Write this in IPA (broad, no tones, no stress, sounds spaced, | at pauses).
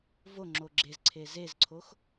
v o ŋ͡ǁ o ɡ͡ǁ e z ǀʰ e z e z ǀʰ o x